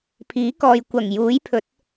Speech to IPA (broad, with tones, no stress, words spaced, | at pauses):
pʰiː˨˥kɔː˨j kʷɐ˨˩ŋjuː˨˥jpʰɵ˨˥t̚